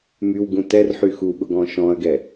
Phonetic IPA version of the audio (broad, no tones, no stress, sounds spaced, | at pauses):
m y w ɡ ũ t ɛ r ħ y x u ɠ ʊ ɡ ɔ̃ ʃ ɔ̃ ɐ̯ ɡ ɛ